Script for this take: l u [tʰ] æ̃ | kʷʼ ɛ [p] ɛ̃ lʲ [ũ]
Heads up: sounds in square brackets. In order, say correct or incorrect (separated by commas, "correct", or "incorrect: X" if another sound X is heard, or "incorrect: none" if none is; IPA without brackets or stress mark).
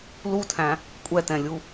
correct, incorrect: t, incorrect: u